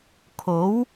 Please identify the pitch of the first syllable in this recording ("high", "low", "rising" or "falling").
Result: rising